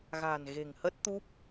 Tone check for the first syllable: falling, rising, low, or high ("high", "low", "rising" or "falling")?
low